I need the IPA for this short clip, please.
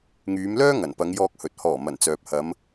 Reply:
ŋ yː˨˧ m l œː˥ ŋ ɐ˨˩ n p ɐ˨˧ ŋ j ɔː˧ k̚ h ɵ˨ t̚ h ɔː˨˩ m ɐ˨˩ n t͡s œː˨ p̚ h ɐ˨˧ m

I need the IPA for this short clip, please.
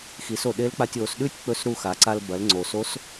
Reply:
x i˩˧ s o˩ ɗ e˧˥ l k͡p a˧ tʲ o˩˧ s ɗ ʉ˥ tʲ k͡p ɵ˧˥ s ɾ u˧ x a˩˧ ǀ a˧ l b ɐ˩˧ l ŋ͡ǀ o˩ s o˧˥ s

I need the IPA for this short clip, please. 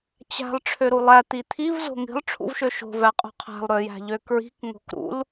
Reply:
t͡ɕ æ̤ lˠ ʈ͡ʂʰ ø ɾ u lˠ æ t̪ i t̪ʰ i v z o̤ ŋ i̤ lˠ ʈ͡ʂʰ ṵ v ʃ ø ʃ o̤ v æ qʼ o̤ qʰ æ̤ lˠ ɾ ø j æ̤ ʎ ø k ɹ i̤ k ŋ o̤ k ɾ ṵ l

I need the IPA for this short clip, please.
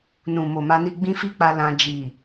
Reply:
n ũ˨ m o˨ m a˧ n i˧ ɡ͡b ĩ˦ f i˦ k͡p a˧ l ã˧ d͡ʒ i˨

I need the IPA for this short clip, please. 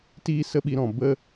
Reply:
t iː˦ s ə˦ ɓ i˨˦ ɾ ɔ̃˨ b ə˦

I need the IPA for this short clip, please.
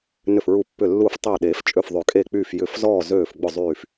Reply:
n ʏ˧˩ f ɹ u˧˩ pː ʏ˧˩ lː u˧˩ f tˤ øː˧˩ ɗ eː˨˩˦ f t͡ʃʼ ø˧˩ f ðˤ ø˨˩˦ kʼ e˧˩ k͡p yː˧˩ f j ʏ˨˩˦ f z ɔː˧˩ z øː˧˩ f ɡ͡b ʊ˧˩ zˤ yː˧˩ f

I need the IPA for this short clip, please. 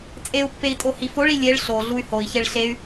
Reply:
t͡sʼ e u̯ pː e i̯ tʼ o h i f o ɭ i lʲ e ɭ ɬ o ɮ u y̯ h o i̯ ç e ɭ ɬ e y̯

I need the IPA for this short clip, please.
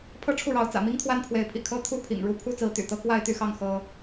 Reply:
pʰ ɤ˥˧ ʈ͡ʂʰ u˥˩ ɻ ɑ˧˥ ʊ̯ t͡s ä̰˨˩ m i˥ ŋ t̪ʰ w a˥ n pʰ w e˧˥ ɪ̯ pʰ ḭ˨˩ kʰ ɤ˥ t̪ʰ u˥ pʰ ḭ˨˩ ŋ ɻ u˥˩ pʰ u˥ t͡s ɹ̩˧˥ t̪ y̰˨˩ t̪ ɤ˥ k w a˥˧ ɪ̯ t̪ y˥˧ x ɑ˥˩ ŋ x ɤ˥

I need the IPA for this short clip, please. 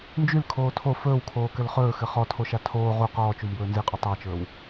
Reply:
n d͡ʒ y l kʰ oː tʰ o f ɵː w kʰ oː k ɘ l χ ɵː x ɘ χ ɔ tʰ o ʃ a tʰ oː ʁ u q ɔː t͡ʃ u m b ɵː n z i qʼ u tˤ a t͡ʃ ɵː w

